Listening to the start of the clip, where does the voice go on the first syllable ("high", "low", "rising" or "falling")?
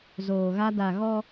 low